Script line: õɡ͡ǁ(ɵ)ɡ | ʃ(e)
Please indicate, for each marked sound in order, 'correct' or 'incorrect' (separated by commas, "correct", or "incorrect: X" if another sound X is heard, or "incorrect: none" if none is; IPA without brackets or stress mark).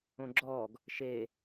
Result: incorrect: ɔ, correct